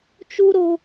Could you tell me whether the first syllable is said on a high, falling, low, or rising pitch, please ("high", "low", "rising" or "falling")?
high